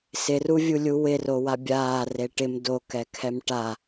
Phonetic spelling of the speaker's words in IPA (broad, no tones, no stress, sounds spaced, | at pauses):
s ɪ r u vʲ u lʲ u w ɪ r o w a bʲ aː r e ʈ ɪ m d o k ɛ kʰ ɛ m ʈ a